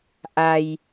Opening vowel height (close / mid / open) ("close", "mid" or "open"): open